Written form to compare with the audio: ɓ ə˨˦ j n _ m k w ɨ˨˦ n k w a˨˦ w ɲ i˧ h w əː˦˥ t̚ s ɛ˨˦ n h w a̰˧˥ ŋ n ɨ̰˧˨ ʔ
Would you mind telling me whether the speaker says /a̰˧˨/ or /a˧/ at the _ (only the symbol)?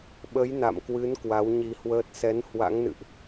a̰˧˨